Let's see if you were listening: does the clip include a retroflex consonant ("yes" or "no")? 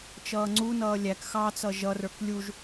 no